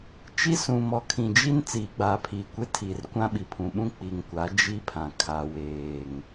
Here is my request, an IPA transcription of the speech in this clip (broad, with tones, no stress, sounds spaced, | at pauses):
t͡ʃ i˦ s ũ˨ m ɔ˨ kʰ ĩ˨ d͡ʒ i˦ n t͡s iː˨ ɡ͡b aː˨ pʰ iː˨ kʷ e˦ tʰ iː˨ r kʷ ã˦ ɓ i˨ pʰ ũ˨ ɓ ũ˦ k͡p i˨ ŋ kʷ a˨˦ d͡ʒ i˦ pʰ ã˨ kʰ a˨ w eː˨ ŋ